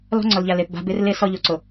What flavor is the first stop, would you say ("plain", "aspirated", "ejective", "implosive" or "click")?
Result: click